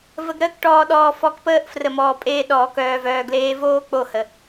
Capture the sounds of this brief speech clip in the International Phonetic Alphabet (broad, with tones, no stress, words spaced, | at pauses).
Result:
və˧ɡɾəː˦k ʈɔː˧ɗɔː˧ fɔ˧kpəː˦ʔ frə˨mɔː˨pʼeː˧ ɗɔː˨ kœː˨vœː˨ɡleː˧voː˦ k͡po˦˨hə˨